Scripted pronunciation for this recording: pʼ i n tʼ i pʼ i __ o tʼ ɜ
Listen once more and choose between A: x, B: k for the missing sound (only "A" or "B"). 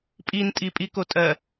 B